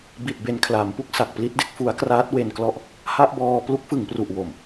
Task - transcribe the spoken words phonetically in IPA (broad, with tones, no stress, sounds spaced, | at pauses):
b i˨˩ t̚ b e˨˩ n kʰ l a˩˦ m p u˥˩ k̚ s a˨˩ k̚ p l i˥˩ t̚ d e˥˩ k̚ f u˦˥ a̯ k r aː˦˥ t̚ w e˧ n k l ɔ˥˩ ʔ | h a˥˩ ʔ b ɔː˧ p l u˦˥ k̚ f ɯ˩˦ ŋ p r u˨˩ ʔ w o˨˩ m